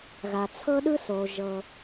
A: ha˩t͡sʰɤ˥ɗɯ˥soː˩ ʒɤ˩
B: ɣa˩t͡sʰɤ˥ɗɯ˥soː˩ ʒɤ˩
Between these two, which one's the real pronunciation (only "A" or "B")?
B